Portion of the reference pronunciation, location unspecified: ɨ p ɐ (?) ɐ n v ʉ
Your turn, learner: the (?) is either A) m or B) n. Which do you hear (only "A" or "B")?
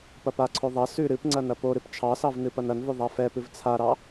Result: B